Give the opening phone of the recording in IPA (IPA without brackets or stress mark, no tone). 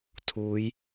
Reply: tʰ